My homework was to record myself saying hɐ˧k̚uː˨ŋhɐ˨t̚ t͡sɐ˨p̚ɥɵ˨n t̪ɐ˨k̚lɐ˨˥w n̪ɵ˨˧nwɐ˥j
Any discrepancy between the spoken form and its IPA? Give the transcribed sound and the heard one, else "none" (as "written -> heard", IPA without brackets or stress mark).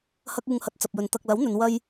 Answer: ɥ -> j